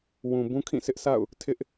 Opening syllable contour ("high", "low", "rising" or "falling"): low